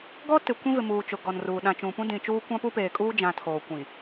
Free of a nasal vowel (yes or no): no